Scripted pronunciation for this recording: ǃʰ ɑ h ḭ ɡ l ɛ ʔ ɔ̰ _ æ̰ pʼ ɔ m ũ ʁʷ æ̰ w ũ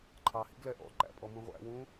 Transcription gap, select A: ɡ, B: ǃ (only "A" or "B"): B